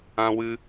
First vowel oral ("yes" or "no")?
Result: no